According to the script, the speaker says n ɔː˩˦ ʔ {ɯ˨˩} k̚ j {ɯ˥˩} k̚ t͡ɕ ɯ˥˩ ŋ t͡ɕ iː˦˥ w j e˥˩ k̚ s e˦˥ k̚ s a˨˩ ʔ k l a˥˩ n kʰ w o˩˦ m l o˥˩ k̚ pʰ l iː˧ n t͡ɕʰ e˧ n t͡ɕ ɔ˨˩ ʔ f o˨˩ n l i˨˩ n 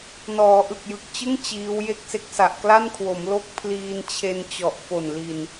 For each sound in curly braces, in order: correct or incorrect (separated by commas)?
correct, incorrect